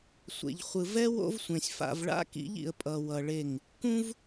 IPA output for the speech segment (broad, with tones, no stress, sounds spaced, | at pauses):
sʷ ḛ˨ ʎ χʷ ɯ˨ v ɛ˦ w o̰˦ v sʷ ẽ˨ sʲ f a̰˨ v ɭ a̰˦ k ḭ˨˦ ʎ ḭ˨ ə̯ pʼ ʌ˨ w ʌ˨ ɭ e˦˨ ŋ | k ũ˦ v